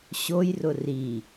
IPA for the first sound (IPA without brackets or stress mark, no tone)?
ɕ